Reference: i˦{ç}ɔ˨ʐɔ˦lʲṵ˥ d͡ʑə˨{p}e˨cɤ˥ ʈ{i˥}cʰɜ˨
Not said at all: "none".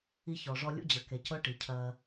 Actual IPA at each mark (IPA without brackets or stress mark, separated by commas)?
ç, k, i˩